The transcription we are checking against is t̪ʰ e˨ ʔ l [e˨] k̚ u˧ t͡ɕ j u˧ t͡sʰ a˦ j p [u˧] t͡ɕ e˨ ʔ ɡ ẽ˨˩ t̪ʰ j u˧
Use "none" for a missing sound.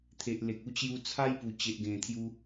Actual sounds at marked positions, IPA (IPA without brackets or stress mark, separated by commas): e˨, u˨˩